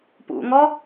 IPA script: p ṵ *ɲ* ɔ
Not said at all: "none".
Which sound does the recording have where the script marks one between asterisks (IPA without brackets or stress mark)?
ŋ